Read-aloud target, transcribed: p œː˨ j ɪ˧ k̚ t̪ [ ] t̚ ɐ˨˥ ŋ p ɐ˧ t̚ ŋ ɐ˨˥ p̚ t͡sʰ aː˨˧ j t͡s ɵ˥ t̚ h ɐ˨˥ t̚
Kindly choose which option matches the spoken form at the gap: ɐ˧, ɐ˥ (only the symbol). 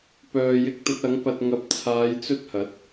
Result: ɐ˧